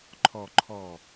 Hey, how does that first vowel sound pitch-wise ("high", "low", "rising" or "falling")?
low